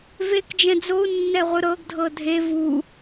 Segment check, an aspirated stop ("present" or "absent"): absent